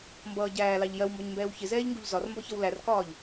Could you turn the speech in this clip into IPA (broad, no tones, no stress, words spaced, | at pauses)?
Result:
mbʌː ɟæːlɑʎ jɜwmbɒɲmbɛːw çɪzɛːʎŋɡuʎ zɒrmbɒçʌw lærkɒːʎ